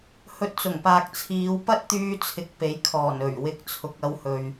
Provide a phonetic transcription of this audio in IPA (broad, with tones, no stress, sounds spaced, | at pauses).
h ɵ˧ t̚ t͡s ʊ˨˩ ŋ p aː˨ k̚ t͡sʰ iː˨˧ w p ɐ˥ t̚ t̪ yː˧ t͡sʰ ɪ˨ k̚ p e˨˥ j kʰ ɔː˨˩ n ɵ˨˩ ɥ w ɪ˨˥ k̚ t͡sʰ ʊ˨ k̚ ɐ˧ w h ɵ˨ ɥ